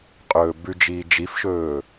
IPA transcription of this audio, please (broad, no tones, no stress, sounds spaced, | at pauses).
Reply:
qʼ ɵː b ʉ d͡ʒ iː d͡ʒ i f ʃ ɵː